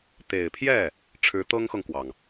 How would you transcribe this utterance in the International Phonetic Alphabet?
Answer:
t̪ e˨˩ ɪ̯ pʰ j ɛ˥˩ | ʈ͡ʂʰ ɻ̩˧˥ t̪ ɤ˥ ŋ x ɤ˨ ŋ k w ɑ˩ ŋ

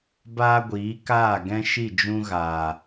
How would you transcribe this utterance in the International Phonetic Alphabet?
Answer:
b aː˦ ɡʷ iː˨˦ k aː˦˨ ɡ ɛ̃˦ ʃ i˦˨ d͡ʒ ũ˦ ɣ aː˨

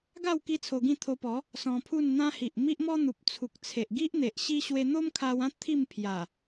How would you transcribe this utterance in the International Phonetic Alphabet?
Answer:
ɡ a˥˧ w k i˦ t͡sʰ o˧ ɡ ĩ˥˧ t̪ʰ o˧ p ɔ˨˦ | s ɔ̃˧ pʰ u˥˧ n n̪ ã˦ h i˨ ʔ m i˦ ʔ m ɔ˦ n̪ u˨ p̚ t͡sʰ u˨ k̚ t͡sʰ e˨ ʔ ɡ i˦ ʔ n̪ e˨ ʔ ɕ i˦ ɕ w e˧ n̪ o˦ m kʰ a˧ w ã˦ t̪ʰ i˥˧ m pʰ j a˨˩

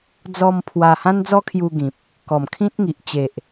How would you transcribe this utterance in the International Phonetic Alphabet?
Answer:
d͡z ɔ˧ m pʰ w a˧ h ã˦ n d͡z ɔ˦ kʰ j u˧ ɡ ĩ˨ p̚ | k ɔ˨˩ m kʰ ĩ˦ t̚ ŋ i˨ ʔ t͡ɕ e˨ ʔ

